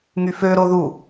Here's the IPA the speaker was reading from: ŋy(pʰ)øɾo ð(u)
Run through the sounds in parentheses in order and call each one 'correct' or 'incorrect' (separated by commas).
incorrect, correct